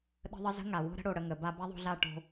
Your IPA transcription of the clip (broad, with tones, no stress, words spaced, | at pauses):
ɗə̤˦ðˤə˦ zə̤˦ŋa˨wo̤˦ɾə̤˦ ɽo˧ɽə˧ ŋə˨ ba˧ ba˦ðˤo̤˧ɮa˦˨ ʈo̤˧